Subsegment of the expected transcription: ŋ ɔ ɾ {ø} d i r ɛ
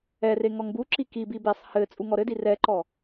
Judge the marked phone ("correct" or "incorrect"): incorrect